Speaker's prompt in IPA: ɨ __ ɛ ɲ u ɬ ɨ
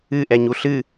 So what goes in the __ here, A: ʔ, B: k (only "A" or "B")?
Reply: A